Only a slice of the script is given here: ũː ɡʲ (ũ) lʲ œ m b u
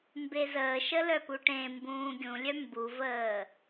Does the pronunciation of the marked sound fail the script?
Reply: no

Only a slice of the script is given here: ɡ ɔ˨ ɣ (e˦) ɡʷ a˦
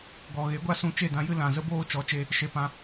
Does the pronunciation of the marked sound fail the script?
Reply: yes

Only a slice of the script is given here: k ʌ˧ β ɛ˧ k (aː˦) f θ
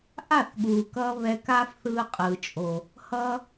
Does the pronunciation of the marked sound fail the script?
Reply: no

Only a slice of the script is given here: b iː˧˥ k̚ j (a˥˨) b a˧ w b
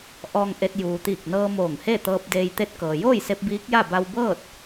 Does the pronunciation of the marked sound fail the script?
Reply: no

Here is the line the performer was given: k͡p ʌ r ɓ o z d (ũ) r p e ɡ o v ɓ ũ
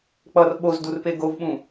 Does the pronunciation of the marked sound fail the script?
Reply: yes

